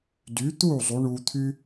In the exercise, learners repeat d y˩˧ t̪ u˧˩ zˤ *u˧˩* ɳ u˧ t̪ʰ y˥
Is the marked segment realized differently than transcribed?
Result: yes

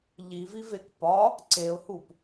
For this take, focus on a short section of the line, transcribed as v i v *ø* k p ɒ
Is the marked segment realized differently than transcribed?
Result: yes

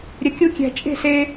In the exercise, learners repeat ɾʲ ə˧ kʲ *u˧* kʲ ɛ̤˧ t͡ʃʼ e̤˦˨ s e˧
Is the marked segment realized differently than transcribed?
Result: yes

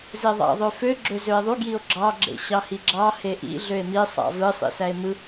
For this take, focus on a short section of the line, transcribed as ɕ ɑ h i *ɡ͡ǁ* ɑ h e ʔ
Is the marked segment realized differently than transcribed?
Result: no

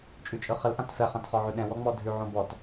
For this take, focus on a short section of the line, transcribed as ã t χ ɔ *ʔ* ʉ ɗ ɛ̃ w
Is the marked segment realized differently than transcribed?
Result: yes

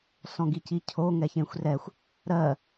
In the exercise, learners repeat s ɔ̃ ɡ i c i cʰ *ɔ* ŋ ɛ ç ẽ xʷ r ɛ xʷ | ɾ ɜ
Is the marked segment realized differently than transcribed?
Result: yes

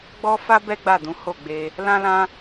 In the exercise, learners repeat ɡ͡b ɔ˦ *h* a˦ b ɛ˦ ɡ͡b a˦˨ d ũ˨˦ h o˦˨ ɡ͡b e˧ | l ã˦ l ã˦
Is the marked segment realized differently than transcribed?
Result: yes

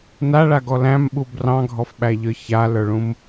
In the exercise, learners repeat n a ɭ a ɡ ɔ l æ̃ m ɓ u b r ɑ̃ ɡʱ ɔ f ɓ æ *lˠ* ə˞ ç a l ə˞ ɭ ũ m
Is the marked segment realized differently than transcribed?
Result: yes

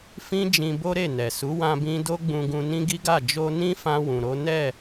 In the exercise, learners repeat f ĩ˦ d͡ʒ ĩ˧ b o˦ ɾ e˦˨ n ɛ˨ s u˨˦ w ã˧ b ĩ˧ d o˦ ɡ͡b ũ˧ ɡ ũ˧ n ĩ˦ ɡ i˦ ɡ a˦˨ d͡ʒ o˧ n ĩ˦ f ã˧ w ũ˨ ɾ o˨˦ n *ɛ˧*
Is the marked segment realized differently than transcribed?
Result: yes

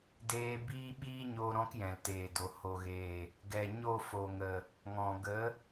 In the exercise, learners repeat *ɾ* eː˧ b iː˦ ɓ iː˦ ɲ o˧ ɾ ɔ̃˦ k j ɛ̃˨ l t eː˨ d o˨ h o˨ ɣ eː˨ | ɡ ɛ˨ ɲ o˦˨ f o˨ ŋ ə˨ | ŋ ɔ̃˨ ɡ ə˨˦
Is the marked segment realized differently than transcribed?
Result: yes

